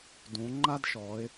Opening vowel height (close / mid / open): close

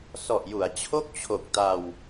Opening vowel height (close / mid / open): mid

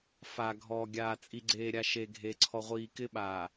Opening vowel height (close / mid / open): open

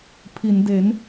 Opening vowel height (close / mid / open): close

